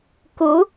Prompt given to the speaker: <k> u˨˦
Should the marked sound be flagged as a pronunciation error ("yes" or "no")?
no